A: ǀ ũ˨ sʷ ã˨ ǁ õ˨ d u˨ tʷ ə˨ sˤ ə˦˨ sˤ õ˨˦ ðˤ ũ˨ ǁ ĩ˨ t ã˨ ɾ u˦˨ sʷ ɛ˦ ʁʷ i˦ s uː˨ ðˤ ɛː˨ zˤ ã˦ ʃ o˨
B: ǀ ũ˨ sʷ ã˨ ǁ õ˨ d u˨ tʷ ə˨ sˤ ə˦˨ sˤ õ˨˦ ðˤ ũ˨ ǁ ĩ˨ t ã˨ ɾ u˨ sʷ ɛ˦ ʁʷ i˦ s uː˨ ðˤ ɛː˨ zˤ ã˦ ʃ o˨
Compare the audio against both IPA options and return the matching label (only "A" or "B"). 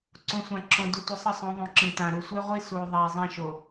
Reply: B